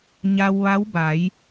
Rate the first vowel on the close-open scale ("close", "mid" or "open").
open